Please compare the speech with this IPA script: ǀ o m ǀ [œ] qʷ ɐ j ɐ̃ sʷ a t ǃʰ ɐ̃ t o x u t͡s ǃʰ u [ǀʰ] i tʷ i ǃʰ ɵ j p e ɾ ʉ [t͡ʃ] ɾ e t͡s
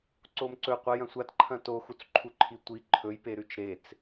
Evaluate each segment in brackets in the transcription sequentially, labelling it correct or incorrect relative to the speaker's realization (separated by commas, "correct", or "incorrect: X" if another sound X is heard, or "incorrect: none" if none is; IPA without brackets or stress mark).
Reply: incorrect: ɵ, incorrect: ǃʰ, correct